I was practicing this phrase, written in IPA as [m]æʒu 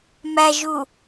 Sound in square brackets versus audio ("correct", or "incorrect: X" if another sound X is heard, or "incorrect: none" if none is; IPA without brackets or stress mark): correct